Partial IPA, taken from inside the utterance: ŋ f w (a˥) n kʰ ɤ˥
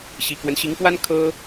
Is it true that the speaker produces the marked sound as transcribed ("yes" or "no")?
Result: yes